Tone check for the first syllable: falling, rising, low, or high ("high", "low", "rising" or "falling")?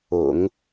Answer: low